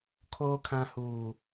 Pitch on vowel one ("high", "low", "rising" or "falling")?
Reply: low